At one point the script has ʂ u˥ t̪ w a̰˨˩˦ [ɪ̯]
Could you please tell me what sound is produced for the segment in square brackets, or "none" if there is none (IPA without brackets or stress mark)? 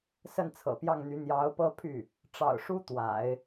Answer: ɪ̯